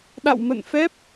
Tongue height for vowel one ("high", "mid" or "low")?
low